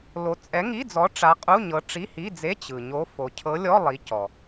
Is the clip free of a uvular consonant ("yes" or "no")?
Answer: no